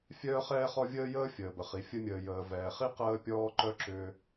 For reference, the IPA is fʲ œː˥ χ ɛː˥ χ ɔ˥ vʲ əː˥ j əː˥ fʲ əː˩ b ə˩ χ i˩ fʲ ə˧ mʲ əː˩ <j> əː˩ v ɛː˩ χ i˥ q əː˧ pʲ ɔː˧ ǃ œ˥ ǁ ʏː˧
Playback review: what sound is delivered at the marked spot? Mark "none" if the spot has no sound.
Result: j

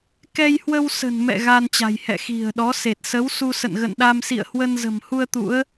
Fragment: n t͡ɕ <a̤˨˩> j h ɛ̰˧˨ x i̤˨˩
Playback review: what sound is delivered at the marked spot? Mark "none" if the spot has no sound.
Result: a̤˨˩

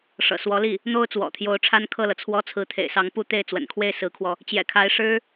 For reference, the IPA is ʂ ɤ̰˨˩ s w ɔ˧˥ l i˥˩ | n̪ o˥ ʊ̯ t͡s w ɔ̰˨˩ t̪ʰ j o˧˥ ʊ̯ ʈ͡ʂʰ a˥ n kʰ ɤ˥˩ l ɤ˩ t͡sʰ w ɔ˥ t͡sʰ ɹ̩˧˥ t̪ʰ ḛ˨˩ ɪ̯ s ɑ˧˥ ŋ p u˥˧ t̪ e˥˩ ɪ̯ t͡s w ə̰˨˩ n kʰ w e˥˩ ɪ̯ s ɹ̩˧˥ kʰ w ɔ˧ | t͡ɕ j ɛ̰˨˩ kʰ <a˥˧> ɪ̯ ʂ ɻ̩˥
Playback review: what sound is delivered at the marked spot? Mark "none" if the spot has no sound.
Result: a˧˥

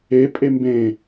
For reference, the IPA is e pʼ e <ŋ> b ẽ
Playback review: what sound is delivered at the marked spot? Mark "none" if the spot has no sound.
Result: m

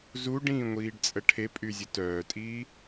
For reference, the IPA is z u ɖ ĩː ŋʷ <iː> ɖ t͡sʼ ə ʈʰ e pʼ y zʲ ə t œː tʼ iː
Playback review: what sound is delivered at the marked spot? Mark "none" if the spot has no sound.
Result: iː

